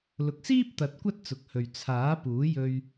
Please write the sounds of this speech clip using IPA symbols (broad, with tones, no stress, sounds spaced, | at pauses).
l ʊ˨ k̚ s iː˥ p̚ t̪ ɐ˨˥ t̚ kʷ ɐ˥ t̚ t͡s ʊ˨ k̚ h ɵ˨ ɥ t͡sʰ aː˨˥ p uː˨˥ j ɵ˧ ɥ